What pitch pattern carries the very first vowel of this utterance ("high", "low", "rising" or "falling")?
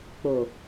low